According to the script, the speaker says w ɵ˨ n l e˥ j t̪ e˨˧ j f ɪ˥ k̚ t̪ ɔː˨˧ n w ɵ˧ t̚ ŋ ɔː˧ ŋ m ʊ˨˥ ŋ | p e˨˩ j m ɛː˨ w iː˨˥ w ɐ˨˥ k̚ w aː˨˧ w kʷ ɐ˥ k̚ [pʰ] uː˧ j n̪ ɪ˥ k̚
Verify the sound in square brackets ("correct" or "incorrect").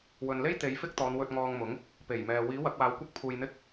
correct